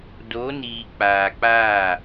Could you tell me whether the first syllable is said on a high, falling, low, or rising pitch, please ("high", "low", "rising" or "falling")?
rising